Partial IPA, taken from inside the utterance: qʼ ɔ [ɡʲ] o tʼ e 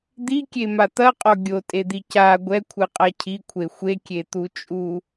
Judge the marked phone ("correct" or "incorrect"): correct